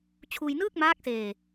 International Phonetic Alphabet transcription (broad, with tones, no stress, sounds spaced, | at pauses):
t͡ɕʰ uː˧ j n ɯː˥˩ k̚ m aː˦˥ k̚ s eː˧